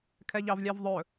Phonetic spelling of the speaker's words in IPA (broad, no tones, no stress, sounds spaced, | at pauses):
kʰ ɛ ʎ ɑ v lʲ ɑ v ðˤ ɵ